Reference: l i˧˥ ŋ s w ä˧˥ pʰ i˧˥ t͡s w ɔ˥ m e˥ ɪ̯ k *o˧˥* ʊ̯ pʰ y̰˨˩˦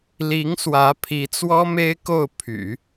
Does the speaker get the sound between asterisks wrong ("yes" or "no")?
yes